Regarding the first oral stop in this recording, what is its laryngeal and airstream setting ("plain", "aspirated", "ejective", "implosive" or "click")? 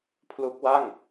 aspirated